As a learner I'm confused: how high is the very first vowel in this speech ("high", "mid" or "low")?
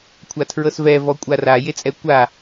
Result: low